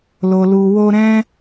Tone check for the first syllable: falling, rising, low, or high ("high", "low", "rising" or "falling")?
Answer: low